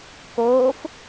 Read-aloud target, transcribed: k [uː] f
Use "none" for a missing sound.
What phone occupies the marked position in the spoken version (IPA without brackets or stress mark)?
oː